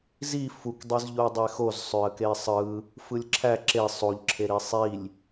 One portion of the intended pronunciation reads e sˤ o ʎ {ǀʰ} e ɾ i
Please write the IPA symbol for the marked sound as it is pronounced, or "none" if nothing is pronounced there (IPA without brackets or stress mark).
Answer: ǁʰ